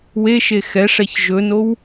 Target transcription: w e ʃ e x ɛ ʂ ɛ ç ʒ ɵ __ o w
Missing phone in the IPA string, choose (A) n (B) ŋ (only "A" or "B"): A